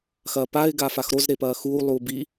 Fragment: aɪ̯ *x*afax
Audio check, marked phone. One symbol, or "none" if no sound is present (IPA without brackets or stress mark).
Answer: ɡ